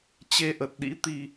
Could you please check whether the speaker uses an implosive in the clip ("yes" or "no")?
yes